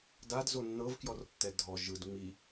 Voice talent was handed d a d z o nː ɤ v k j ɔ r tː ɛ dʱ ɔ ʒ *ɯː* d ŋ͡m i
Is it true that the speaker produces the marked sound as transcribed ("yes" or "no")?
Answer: no